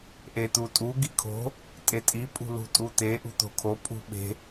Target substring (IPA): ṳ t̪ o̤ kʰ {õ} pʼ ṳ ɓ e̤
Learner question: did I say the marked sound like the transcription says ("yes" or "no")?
no